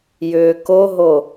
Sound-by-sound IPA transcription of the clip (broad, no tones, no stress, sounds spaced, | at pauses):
j ʏː k o ɦ o